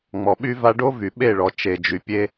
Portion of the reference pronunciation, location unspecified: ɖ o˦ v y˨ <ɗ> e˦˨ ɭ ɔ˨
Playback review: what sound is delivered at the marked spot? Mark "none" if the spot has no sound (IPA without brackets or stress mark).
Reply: ɓ